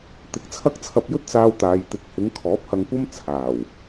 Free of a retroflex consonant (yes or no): yes